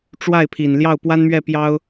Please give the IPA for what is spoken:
ʈ͡ʂwa˥˩ɪ̯pʰi˨˩n ljɑ˥˩ʊ̯pwa˥nmɥɛ˥˩ pjɑ˥ʊ̯

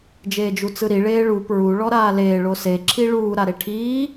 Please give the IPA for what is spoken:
d͡ʒeːd͡ʒut͡sɯɾi ɭeːɭu pɹu ɭɔɾaːleː ɭose ǁʰiɭuː ɾaɾeʈʰiː

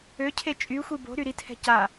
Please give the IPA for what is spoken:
øcʰe t͡ʃʼyxʷi bo̤ ɾyɾithɛ̤ ca

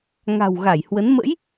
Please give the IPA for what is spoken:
ŋa̤˨˩wɣa˧˩jhwə˨˦n mə̰˧˥j

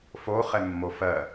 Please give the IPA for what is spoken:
foχɛmːo fɜ

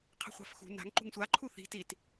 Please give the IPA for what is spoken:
qʰe̤χʷa̤fxṳ na̤ŋ ǃṳŋsʷa ǃʰuθi̤ tit

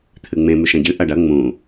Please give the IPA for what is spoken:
t̪ʰɨŋ͡mẽ mʉʃɐ̃ɟɨ ʔɐɖɐ ŋ͡mũ

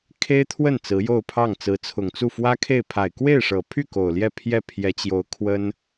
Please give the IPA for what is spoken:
kʰe˥ɪ̯t̪ʰwə˥˩n t͡sɹ̩˧˥jo˥˧ʊ̯pʰɑ˥˩ŋ t͡sɹ̩˧˥t͡sʰʊ˨˩ŋt͡su˥˩ fwä˥kʰe˥˩ɪ̯ pʰa˨˩ɪ̯kwe˥˩ɪ̯ʂɤ˨˩pʰy˥˩ ko˨˩ʊ̯ljɛ˥˧ pʰjɛ˥˩pʰjɛ˧˥t͡ɕjo˧˥ʊ̯ kʰwə˥n

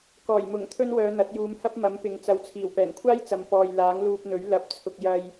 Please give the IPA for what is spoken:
kɔː˨˩j mʊ˨˩ŋ t̪ʰɵ˥nwœː˨˧n̪ɐ˨˥t̚juː˨˧m hɐ˥p̚mɐ˨˥m pɪ˨ŋt͡sɐ˨wt͡sʰiː˨˩w pɛː˨˩nkʷʰaː˥jt͡sɐ˨m pɔː˨j laː˨˥ŋluː˧p̚n̪ɵ˨˥ɥ lɐ˨˥p̚t͡sʰʊ˨k̚jɐ˧j

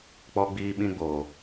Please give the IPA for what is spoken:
k͡pɔ˧ɡ͡biː˧ɓĩ˧ɡ͡boː˨

